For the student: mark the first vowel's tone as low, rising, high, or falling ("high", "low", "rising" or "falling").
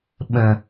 low